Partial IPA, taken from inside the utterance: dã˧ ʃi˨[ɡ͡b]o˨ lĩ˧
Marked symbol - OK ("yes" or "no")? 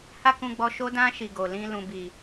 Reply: no